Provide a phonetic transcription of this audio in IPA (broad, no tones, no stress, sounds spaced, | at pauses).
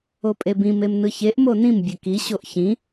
o pʼ e b ĩ m e m n ɯ ç e ʔ m o n ĩ m bʲ ɘ k i ɕ o ʔ ç ĩ